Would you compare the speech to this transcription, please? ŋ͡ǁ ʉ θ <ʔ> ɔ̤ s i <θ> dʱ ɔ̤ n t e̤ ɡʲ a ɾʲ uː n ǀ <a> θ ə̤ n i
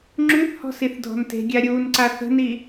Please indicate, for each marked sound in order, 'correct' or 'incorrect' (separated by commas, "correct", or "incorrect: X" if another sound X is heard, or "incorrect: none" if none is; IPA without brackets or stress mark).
incorrect: h, correct, correct